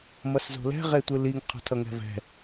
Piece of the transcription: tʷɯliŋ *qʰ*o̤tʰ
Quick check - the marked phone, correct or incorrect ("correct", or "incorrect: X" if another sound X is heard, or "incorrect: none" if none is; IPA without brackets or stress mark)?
correct